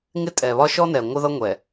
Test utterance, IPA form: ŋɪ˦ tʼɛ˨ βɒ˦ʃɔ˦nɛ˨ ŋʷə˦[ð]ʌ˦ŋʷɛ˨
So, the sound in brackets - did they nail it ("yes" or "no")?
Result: yes